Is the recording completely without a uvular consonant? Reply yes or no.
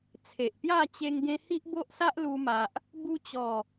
yes